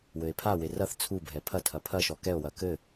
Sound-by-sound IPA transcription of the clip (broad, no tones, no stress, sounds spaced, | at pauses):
w ɘ e̯ pʰ a w e r ɐ θ t͡sʰ u bʱ ɛ pʰ ɐ tʰ ɐ pʰ ɐ ʃ ɔ k ɛ o̯ w ɐ k ɘ